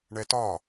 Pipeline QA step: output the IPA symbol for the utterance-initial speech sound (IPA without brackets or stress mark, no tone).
ɳ